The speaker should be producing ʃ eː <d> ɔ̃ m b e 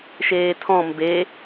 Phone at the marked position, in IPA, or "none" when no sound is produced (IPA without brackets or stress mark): tʰ